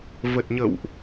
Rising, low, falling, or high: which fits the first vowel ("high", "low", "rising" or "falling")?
low